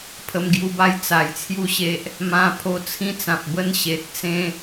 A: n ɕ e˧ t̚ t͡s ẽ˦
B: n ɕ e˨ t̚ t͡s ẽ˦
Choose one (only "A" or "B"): B